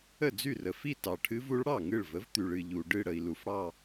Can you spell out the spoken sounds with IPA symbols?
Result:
ə˥˩d͡zy˥˩rə˨fi˥˧ tɑ˨ʈʰɨ˦˥vu˨˥ɭ ɽɑ˥˩ŋɨ˥˩ɭvə˨˥v t̪y˨ɭɨ˥˧ʎu˨ ɖɨ˥˧ɽə˨i̯ lu˨fɽɑ˥˧

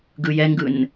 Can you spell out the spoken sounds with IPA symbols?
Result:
ɡɯjɛŋɡɯn

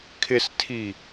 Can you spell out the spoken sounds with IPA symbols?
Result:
kʰɪstʰi

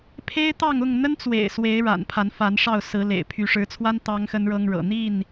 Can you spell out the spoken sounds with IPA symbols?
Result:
pʰe˦ɪ̯t̪ɑ˥˨ŋ ʊ˥˨ŋn̪ə˦nt͡swḛ˨˩ɪ̯ swe˨˦ɪ̯ ɻa̰˨˩npʰa˨˦nfa˨˦nʂɑ˥˨ʊ̯ sɹ̩˨˦lḛ˨˩ɪ̯ pʰy˨˦ʂɻ̩˨˦t͡sʰwa˦n t̪ɑ˦ŋxə˦nɻɤ˦ŋɻɤ̰˨˩ n̪i˥˨n

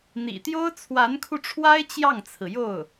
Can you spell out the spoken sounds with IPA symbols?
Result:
n̪ḭ˨˩ t̪jo˥ʊ̯t͡sʰwa˧˥nkʰu˧ʈ͡ʂʰwa˥ɪ̯ t͡ɕjɑ˥˩ŋt͡sʰɹ̩˩jo˥˩ʊ̯

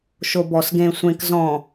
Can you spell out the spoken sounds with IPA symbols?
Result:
ʃobɔs ɡẽ sʷẽk zɔ̃

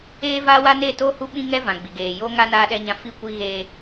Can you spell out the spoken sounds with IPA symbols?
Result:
eː˦vaː˦wa˦ neː˦˨toː˦ hu˦ɓĩ˦ŋɛ˦ vã˨ɡ͡bi˨ɡeː˨ joː˦ŋa˦ naː˦ɗɛ˦ɲã˦ fi˦˨ kʷi˦ɣeː˦

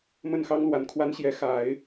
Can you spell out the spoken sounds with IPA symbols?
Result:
mə˥˩nxɑ˥ŋlwa˧˥nkʰwa˥n ɕjɛ˧˥xa˨˩˦ɪ̯

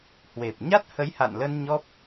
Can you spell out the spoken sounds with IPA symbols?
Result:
hwe˨˩p̚ɲa˦˥t̚ hə˨˦jha̰˧˨nlə˧n ɲɔ˦˥p̚

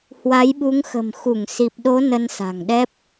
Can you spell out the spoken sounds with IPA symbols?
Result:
hwa˨˦jɓu˨˦ŋxə̤˨˩m xu˧˩ŋsi˨˩p̚ɗo˨˦ nə˧nsa̤˨˩ŋɗɛ˦˥p̚

